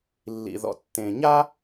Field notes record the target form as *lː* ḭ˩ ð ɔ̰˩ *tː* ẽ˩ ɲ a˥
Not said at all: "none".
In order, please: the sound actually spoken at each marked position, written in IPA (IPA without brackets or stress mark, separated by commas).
lː, tː